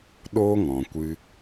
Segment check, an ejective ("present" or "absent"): absent